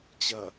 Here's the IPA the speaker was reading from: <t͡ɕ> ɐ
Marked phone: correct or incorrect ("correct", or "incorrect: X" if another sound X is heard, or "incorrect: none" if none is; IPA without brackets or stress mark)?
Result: correct